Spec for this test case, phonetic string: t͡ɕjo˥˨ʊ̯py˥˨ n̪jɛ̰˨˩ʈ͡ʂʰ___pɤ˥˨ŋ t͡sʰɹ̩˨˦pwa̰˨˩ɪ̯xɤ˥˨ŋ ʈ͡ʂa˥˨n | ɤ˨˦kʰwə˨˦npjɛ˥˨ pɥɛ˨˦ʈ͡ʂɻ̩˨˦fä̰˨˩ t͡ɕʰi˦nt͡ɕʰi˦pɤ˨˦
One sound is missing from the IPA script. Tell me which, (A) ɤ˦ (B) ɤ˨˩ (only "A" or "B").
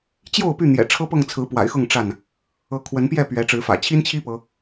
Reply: A